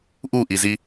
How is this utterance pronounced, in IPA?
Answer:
ʔuʔizi

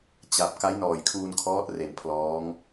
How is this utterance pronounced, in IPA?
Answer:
t͡ɕa˨˩p̚ ka˦˥jnɔː˨˩jkʰuː˧nkʰɔː˦˥t̚ re˨˩npʰlɔː˦˥ŋ

